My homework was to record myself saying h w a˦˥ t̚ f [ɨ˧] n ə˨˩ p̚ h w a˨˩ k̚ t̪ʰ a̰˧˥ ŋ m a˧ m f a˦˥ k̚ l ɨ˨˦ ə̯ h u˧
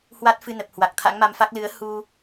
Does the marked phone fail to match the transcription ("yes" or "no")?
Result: no